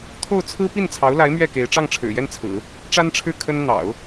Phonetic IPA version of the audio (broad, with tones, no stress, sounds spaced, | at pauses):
t̪ʰ o˥˩ ʊ̯ t͡sʰ ɹ̩˥ p i˥˩ n t͡sʰ ɑ˧˥ ʊ̯ l a˧˥ ɪ̯ m ɥ ɛ˥˩ k e˧˥ ɪ̯ ʈ͡ʂ ɑ˥˩ ŋ ʈ͡ʂʰ ɻ̩˨˩ j ɛ˥˩ n t͡sʰ ɹ̩˨˩˦ | ʈ͡ʂ a˥ n ʈ͡ʂʰ ɻ̩˥˩ kʰ ə˥ n n̪ ɑ̰˨˩˦ ʊ̯